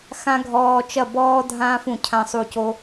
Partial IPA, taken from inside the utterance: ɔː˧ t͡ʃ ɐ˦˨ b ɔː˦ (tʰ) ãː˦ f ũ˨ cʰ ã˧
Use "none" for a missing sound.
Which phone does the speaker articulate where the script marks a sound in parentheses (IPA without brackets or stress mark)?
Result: dʱ